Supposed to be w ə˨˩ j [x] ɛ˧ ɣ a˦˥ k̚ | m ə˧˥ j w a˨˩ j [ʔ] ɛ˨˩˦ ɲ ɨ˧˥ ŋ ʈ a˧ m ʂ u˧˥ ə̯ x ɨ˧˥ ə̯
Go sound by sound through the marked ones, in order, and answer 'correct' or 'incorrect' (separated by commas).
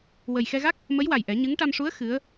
correct, correct